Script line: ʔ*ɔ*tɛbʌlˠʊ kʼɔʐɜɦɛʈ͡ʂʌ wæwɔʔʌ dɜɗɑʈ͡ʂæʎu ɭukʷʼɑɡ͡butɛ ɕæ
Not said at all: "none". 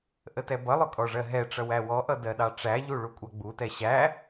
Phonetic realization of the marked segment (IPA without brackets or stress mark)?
ə